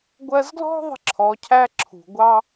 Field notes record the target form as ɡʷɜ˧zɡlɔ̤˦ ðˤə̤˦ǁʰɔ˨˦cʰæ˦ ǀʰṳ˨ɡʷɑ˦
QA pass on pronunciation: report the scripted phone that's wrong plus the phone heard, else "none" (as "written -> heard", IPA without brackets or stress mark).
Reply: ǀʰ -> ǁʰ